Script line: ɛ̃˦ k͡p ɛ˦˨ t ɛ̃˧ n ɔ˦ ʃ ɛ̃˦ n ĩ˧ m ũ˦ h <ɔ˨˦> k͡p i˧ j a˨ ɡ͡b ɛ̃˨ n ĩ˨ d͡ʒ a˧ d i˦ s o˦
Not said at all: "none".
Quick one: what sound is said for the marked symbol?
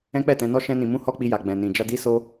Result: ɔ˦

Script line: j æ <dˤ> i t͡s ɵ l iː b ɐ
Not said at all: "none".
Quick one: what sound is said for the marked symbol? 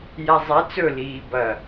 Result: zˤ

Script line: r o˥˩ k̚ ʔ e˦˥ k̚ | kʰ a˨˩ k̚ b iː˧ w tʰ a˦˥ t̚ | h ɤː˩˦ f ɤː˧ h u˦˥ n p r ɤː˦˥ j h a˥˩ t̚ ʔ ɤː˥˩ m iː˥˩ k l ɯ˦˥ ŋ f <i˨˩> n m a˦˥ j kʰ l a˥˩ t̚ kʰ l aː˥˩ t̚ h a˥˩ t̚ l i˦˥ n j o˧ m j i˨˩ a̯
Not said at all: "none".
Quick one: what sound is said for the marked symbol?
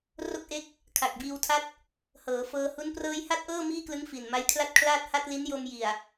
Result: i˨˩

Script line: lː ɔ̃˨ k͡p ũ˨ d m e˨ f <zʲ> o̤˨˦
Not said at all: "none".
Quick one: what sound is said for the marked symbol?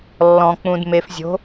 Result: zʲ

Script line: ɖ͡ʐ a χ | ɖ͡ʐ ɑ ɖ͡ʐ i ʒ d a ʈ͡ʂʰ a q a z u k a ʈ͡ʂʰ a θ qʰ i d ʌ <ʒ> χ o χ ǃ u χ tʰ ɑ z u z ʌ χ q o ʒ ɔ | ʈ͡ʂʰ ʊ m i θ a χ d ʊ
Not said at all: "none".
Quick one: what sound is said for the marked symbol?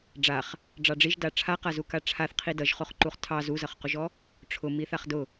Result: ʒ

